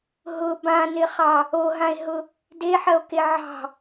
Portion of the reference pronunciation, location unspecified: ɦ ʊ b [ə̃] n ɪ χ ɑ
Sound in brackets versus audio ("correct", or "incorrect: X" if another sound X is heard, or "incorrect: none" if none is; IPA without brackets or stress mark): incorrect: ã